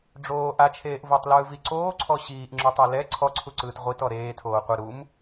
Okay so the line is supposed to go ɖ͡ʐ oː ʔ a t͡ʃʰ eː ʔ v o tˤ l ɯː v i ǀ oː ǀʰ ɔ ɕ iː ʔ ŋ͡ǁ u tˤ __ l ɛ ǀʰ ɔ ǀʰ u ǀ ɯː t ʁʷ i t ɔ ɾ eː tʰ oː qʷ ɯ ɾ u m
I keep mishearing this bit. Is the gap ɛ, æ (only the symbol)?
ɛ